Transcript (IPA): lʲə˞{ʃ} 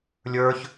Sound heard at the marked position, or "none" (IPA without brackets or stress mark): ç